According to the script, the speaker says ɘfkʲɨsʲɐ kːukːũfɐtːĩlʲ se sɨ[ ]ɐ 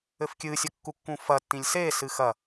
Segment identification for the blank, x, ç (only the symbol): x